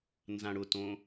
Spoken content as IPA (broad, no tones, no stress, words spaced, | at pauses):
nzãɽʊtõ